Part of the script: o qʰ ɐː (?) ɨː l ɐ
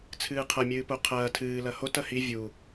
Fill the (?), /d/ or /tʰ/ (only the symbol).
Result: tʰ